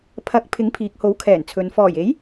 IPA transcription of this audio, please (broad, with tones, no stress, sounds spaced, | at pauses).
pʰ ɐ˨˥ k̚ pʰ ɪ˨˥ ŋ pʰ iː˨ k̚ h o˨˥ w kʰ ɛː˨˩ n t͡sʰ ɵ˨ n f ɔː˨˩ j e˨˥ j